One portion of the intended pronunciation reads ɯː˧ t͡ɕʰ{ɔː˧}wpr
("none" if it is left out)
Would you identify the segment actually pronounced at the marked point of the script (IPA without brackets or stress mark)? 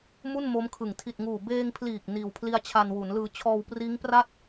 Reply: ɔː˧